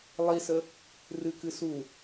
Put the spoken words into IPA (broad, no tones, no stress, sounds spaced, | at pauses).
lˠ i s ə | r ɨ k ɨ s u